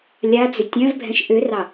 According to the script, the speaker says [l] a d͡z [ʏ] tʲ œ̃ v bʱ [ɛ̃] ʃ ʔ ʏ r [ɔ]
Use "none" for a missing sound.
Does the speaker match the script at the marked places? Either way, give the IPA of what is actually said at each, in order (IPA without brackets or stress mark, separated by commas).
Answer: lʲ, ʏ, ɛ̃, ɑ